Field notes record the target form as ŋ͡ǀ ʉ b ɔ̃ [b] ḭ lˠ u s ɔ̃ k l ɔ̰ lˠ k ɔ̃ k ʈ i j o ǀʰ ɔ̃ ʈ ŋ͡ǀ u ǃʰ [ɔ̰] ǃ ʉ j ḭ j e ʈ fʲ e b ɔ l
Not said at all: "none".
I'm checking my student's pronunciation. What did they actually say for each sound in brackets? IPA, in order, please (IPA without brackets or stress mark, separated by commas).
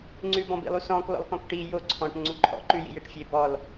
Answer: b, ɔ̰